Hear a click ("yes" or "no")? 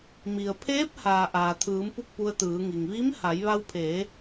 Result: no